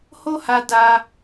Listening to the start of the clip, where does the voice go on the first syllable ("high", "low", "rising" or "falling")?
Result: high